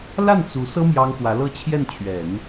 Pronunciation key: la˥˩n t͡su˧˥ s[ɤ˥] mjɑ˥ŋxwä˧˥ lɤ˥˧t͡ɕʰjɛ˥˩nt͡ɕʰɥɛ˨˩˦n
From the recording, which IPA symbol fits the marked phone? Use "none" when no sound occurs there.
ɤ˥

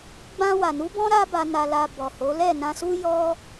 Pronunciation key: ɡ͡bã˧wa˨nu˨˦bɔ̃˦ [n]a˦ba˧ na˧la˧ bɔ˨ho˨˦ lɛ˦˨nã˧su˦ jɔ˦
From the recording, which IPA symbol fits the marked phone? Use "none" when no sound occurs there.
ɾ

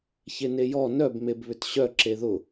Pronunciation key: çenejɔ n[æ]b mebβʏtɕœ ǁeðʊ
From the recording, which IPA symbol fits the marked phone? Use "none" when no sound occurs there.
œ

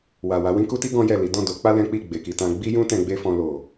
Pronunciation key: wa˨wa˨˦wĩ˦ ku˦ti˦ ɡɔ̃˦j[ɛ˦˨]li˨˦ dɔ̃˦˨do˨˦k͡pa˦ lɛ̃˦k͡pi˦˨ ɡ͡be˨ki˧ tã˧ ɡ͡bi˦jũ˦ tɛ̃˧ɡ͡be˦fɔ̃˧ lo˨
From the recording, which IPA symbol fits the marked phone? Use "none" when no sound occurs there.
ɛ˦˨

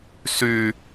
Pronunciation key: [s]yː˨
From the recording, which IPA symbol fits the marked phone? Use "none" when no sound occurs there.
s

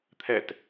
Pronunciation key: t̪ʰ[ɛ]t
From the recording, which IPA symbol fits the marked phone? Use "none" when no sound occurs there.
ɛ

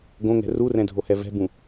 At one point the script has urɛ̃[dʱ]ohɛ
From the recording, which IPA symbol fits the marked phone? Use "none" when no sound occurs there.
dʱ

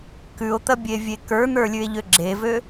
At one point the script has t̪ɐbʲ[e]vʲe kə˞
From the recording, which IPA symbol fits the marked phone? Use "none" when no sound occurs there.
e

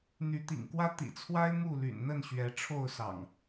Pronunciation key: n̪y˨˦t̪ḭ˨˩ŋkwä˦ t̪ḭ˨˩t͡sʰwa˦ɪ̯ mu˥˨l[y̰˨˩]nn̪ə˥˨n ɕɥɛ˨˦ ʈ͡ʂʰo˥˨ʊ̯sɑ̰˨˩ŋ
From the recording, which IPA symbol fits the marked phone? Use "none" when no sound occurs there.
y̰˨˩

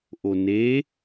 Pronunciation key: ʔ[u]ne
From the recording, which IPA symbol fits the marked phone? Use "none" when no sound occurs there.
o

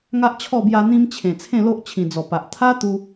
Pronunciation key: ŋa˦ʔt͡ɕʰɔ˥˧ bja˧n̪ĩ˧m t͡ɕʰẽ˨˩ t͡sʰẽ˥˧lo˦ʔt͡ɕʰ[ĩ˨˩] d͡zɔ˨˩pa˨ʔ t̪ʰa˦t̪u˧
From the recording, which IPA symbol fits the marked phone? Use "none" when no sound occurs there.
ĩ˨˩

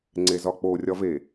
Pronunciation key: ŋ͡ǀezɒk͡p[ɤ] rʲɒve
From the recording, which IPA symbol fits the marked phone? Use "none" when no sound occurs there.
o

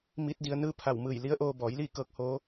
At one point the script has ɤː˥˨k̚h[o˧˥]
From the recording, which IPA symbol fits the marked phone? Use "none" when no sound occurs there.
oː˧˥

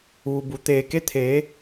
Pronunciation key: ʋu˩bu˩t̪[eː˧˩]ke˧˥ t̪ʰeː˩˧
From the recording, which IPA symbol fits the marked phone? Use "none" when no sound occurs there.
eː˧˩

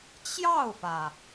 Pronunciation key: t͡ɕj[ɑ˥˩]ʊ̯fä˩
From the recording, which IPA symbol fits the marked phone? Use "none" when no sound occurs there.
ɑ˥˩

